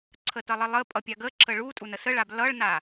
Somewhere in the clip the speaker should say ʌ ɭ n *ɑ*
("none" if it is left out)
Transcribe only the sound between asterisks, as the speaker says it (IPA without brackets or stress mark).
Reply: a